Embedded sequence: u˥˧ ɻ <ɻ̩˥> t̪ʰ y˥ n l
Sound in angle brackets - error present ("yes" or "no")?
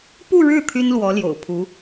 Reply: yes